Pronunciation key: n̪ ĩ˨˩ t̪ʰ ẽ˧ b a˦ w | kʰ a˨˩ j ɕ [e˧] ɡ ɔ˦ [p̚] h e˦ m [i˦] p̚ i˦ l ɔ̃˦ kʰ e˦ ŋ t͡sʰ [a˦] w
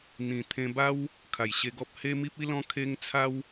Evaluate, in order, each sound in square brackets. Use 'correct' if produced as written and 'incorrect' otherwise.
correct, correct, correct, correct

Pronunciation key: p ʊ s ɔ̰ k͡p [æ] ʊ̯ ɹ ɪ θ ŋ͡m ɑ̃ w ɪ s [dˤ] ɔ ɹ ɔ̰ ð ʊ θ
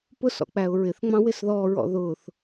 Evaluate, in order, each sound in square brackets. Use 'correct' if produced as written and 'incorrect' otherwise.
correct, incorrect: ð

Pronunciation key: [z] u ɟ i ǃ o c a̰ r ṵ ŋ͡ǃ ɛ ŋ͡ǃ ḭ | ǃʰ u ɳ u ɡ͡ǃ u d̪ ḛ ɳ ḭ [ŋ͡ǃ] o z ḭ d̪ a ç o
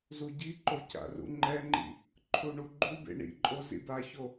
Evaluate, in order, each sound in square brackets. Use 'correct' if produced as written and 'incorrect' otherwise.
correct, incorrect: ǃʼ

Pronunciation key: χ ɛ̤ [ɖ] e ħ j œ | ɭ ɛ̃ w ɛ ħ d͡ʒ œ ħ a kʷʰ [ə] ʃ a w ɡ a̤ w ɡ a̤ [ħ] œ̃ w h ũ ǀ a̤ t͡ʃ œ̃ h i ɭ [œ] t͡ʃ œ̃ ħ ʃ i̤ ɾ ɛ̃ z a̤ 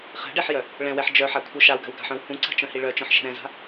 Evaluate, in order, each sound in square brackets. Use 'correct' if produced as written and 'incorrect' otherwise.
correct, incorrect: œ, correct, correct

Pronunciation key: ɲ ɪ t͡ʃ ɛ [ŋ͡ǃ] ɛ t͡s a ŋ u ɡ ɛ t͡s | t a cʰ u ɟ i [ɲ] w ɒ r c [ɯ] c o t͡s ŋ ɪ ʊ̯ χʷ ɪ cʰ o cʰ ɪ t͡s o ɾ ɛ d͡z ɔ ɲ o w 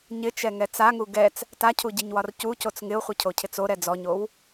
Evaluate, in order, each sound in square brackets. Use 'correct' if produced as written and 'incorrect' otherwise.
incorrect: ŋ, correct, incorrect: u

